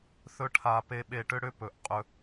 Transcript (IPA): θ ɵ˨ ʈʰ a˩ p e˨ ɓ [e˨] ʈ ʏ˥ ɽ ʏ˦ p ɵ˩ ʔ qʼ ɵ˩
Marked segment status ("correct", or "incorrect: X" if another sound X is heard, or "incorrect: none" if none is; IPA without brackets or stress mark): correct